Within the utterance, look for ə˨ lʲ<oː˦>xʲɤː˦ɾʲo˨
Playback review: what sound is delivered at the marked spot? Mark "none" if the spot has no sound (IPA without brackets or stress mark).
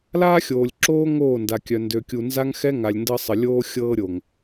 oː˦